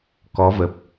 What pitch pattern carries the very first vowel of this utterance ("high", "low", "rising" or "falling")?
rising